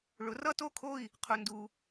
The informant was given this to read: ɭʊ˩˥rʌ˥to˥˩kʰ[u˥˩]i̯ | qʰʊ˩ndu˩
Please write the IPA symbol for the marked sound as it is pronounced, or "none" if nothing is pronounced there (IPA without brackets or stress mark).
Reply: o˥˩